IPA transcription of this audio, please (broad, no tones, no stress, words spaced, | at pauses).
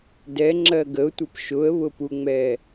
dɛŋ͡ǁɜ ɡəʊ̯tʷʌp ʃʊə̯βʊpuŋ͡mɛ